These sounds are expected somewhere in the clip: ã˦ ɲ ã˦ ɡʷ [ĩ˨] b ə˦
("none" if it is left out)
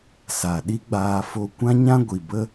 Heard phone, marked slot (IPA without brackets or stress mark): i˨